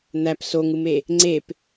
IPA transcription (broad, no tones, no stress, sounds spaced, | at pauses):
n̪ æ p s o ŋ ɯ m e | ŋ͡ǀ e p